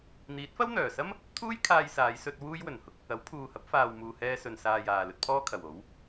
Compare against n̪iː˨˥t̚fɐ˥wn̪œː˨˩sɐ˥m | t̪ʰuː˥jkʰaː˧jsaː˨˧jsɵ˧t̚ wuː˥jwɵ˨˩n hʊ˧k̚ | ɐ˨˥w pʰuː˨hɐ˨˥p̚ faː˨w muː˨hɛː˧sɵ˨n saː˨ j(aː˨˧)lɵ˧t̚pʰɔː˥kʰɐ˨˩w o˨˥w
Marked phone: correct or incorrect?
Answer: incorrect: aː˨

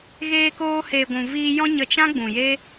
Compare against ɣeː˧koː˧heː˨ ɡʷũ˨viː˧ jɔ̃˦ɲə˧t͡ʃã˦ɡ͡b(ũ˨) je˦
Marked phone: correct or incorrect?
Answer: correct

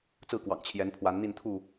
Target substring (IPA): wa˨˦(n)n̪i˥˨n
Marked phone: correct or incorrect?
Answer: correct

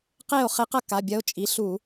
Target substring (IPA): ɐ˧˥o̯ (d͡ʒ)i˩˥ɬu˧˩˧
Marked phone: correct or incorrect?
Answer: incorrect: t͡ʃʼ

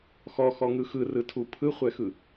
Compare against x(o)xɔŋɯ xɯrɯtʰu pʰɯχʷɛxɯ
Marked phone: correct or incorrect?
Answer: incorrect: ɔ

